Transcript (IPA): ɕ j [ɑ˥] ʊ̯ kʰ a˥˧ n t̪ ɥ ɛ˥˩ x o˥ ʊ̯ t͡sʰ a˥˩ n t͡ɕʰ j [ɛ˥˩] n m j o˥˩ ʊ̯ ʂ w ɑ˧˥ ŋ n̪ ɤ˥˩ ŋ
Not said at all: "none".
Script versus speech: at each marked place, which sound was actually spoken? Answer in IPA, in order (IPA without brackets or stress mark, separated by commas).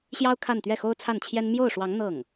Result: ɑ˥, ɛ˥